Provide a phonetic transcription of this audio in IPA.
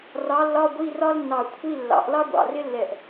r ɑ˨˥ lː ɒ˧˥˧ ɡʷ i˧˥˧ r ɒ˥ l nː ɑ˧˩ kʷʰ i˧˥˧ lː ɑ̰˨˩˦ ʔ l ɑ˥ ɡʷ ɑ̰˧˩ r ɪ˥ lː ɛ˧˩ ʔ

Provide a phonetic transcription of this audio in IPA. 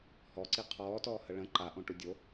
h ɔ ǀ i qʰ ɔː t ɔː h ə ɭ ə̃ ǃ a ʔ õ ʈ u dʲ o

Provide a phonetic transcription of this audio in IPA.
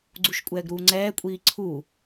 ɡ͡ǀ u ʃ kʷʼ ɛː ɡ ɾ uː ŋ͡ǀ ɛː kʷʼ iː ǀʰ u

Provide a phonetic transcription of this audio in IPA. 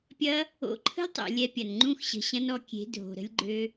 pʲ ɐ˦ | o̰˨˦ ǃʰ ə̤˦ lʲ tˤ o̰˨ lʲ ɛ˧ pʲ ɐ˨ n ŋ͡ǃ ũ˦˨ x ɕ ə̤˨ ɕ ɐ̃˦ n ɔ˧ kʲ e̤˨˦ dʱ o̤˨ ɾ ə̤˧ lʲ ɡ͡ǃ ø˧

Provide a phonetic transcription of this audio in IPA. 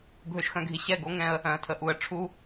bʱ ø˨ ʃ x œ̃˨ ɡʱ i˨ ɕ ɛ˦˨ ɡ o˦ ŋ ɛ̃˦ ə̯ | œ̃˨ ə̯ tʰ ə˨ ʔ u˨ ə̯ ʈ͡ʂʰ u˦

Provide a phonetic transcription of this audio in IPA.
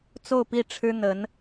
t͡s o˥˧ ʊ̯ p i˥˩ ʈ͡ʂʰ ɻ̩˥ n̪ ə˧˥ n

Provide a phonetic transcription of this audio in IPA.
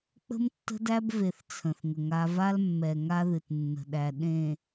k͡p ə̤˦ m tː ə̤˦ d æ˦ b v e˨ θ t͡sʰ ə̃˨ θ ŋ ə˨ ŋ a˦ v a˦ l mː ɛ˨ ŋ a˦ ð ɨ˨ t nː ə̤˨ ɗ æ˨ ɗ ẽ˨

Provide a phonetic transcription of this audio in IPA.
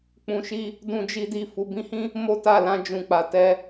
k͡p ũ˨ ʃ i˧ | d ũ˧ d͡ʒ i˧ d i˧ f u˨ b ĩ˧ h ĩ˦ | m o˦ t a˦˨ l ã˧ d͡ʒ ũ˨ k͡p a˨ t ɛ˧

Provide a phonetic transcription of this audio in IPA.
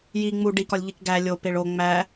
j i ŋ͡m u ɖ i k ɒ lʲ ʎ i k ɡ æ lʲ o p e ɭ o ŋ͡m æ

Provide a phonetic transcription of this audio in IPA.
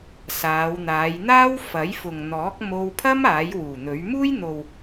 s aː˨˧ w n̪ aː˨˧ j n̪ aː˥ w f ɐ˨˥ j f ʊ˨ ŋ n̪ ɔː˨˥ k̚ m o˧ w pʰ ɐ˥ m aː˨˥ j w uː˨˩ n̪ ɵ˨˥ ɥ m uː˥ j n̪ o˨ w

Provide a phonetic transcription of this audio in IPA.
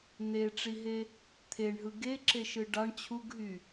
n̪ e ʈ͡ʂ i ɦ e | t̪ʰ e ɳ ɦ ɯ ɡ e ǁ e ʃ ɯ ɖ ɑ ɳ t͡ɕʰ u ɡ ɦ y

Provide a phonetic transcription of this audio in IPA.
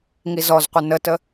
ŋ i z ɔ z qʷ ɪ n ə t ə

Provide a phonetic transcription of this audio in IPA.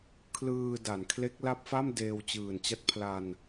kʰ l ɯː˧ d a˩˦ n kʰ l e˦˥ k̚ l a˦˥ p̚ f a˥˩ m d eː˧ w t͡ɕ ɯː˨˩ n t͡ɕ a˦˥ t̚ pʰ l a˧ n

